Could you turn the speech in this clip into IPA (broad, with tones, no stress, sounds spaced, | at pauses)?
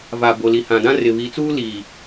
v a˨ b o˨ l i˨ h ã˨ d ã˦ r ɪ˨ β i˨˦ t͡s uː˦ l iː˨